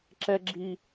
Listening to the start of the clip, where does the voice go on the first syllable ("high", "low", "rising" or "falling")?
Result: high